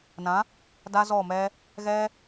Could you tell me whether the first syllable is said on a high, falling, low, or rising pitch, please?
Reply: rising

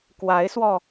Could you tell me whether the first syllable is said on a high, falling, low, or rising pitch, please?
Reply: rising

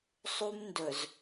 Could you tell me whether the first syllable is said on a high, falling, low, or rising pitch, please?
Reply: high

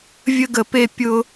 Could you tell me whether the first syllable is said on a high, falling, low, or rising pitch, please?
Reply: high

